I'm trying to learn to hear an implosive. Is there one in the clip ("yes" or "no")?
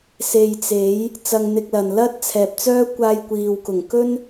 no